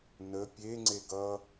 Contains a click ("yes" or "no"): yes